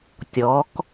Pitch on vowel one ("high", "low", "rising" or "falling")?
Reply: rising